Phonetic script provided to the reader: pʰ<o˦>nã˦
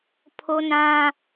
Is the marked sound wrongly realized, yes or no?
no